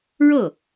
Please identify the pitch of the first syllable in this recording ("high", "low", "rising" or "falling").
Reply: falling